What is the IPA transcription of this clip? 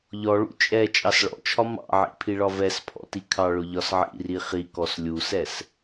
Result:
ʎɔɭṵ t͡ʃʼɛ t͡ʃʼɑsɭɔ̰t͡ʃʰɒ mɑ̰ʕḭ pʰiɭɒvɛspʰɔ̰ tikʰɑɭʊ ʎɒsʕḭri χikɔs lʲusɛs

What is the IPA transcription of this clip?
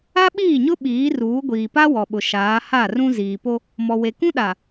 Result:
a˦ɓiː˦˨ɲʊ˦ ɓiː˨˦ruː˨˦ ɡʷiː˨pa˦wɔ˨ɓʊ˨ ʃaː˨˦ha˦˨rũ˦ ziː˨po˦ | mɔ˨we˨ kũ˦ɗa˨

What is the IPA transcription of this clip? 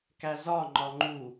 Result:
kæzɒ ŋ͡ǃɒŋ͡ǃu

